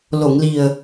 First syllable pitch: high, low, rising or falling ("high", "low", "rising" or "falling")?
low